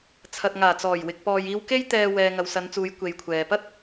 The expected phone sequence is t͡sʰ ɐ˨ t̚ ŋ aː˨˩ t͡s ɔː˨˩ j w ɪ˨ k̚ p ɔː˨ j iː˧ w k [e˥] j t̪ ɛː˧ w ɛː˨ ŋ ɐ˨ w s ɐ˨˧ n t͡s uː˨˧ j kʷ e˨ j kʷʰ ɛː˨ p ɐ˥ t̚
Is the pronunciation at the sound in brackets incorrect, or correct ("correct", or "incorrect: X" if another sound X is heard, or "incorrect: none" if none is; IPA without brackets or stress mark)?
correct